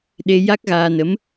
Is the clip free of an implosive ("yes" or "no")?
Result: no